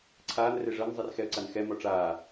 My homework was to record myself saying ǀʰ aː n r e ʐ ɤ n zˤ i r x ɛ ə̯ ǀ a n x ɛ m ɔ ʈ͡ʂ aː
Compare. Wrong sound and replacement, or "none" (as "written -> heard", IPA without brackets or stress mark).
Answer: none